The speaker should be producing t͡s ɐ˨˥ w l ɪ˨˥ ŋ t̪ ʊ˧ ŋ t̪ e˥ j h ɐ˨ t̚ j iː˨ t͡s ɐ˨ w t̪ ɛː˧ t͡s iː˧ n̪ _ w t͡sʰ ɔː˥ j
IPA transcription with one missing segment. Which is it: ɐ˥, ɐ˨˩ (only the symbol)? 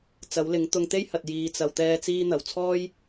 ɐ˨˩